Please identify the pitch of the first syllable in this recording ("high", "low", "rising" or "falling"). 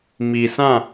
low